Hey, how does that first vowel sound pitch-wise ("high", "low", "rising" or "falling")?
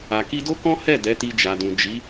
low